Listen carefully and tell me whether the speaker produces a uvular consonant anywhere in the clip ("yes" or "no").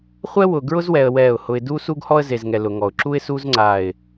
yes